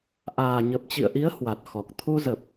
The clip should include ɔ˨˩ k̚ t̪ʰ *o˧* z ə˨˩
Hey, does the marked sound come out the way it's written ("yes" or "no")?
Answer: no